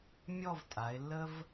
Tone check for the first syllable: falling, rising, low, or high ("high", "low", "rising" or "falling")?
falling